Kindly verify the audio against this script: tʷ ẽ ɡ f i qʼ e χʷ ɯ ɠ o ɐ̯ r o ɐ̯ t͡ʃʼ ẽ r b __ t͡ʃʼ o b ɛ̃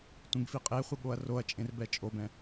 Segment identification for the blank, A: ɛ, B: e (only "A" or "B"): A